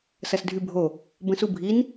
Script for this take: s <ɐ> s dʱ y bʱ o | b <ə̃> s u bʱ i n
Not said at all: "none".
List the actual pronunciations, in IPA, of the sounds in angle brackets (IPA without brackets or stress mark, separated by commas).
ɐ, ə̃